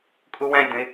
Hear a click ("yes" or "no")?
no